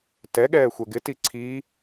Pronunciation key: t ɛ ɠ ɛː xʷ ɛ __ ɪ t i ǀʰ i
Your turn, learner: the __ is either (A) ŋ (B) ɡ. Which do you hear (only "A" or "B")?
B